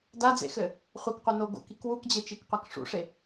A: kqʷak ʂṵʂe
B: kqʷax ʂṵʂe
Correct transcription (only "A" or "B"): A